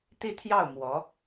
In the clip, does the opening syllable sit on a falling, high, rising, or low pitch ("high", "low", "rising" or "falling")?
falling